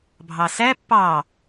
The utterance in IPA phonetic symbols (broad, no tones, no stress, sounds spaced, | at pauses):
bʱ ɑ s æ pː ɑ